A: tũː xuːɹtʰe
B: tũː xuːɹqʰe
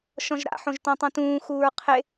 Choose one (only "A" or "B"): B